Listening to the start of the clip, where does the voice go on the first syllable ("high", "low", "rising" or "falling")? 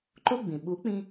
high